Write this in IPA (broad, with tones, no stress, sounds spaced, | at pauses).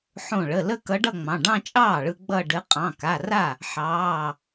ħ õ˧˩ ɭ ə˩˧˩ l ə˥˧ k ʌ˧˥ ɖ ʌ˥˧ ŋ͡m ɑ̃˩˧˩ ɖ ɑ̃˥˧ t͡ʃʼ ɑː˥˩ ɭ ɯ˧ ɡ͡b ʌ˥˧ ɖ ɘ˧˥ qʼ ɑ̃˩˧˩ k a˩˧˩ r a˥˩ | ħ ɑː˩˧˩